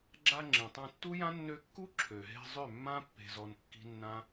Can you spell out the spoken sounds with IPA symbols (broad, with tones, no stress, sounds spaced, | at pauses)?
ɡ͡ǁ a˧ ŋ͡ǁ ĩ˨ tˤ ã˧ tː u˦ j ã˦ nː ø˧ kː u˦ ǁʰ ø˨ ɦ e̤˧ zˤ ø˦˨ mː ã˦ pː e̤˧ z ɔ˧ n kː i̤˦ nː ã˦